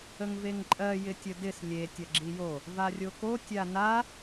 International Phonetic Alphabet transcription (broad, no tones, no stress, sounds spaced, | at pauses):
ə ŋ v e ŋ ǃʼ ɜ j ɪ tʲ ə d ɪ s lʲ e tʲ ɐ ɡ͡ǁ i j o | v a rʲ o k o tʲ a n a